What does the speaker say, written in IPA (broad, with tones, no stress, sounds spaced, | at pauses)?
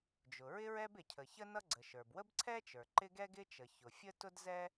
d͡ʒ ʊ˩ ɹ ɪ˥ ɹ ɛ˥ b ɪ˩ cʰ ə˩ ç ə˥ n ʌ˥ ɡ͡ǀ ə˩ ʃ ə˞˩ b w ə˥ b ǀʰ ɛ˥ t͡ʃ ə˞˩ ǃ ɪ˥ ɡ ɛ˥ ɡ ɪ˥ t͡ʃ ə˩ ç ʊ˩ fʲ ə˥ t ʊ˥ d z ɛ˥